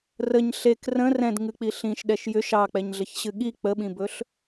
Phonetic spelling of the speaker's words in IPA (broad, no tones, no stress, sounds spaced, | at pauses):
r ə ɲ ɬ e k r ə̃ r ɛ̃ d ŋ ɨ k͡p i ɬ ĩ ʃ ɗ ɛ ʃ j ʏ ʃ ɑ k͡p ɛ ɲ ɮ ə ç ɕ ɨ ɠ i k͡p ə ɓ ĩ b ɵ ɬ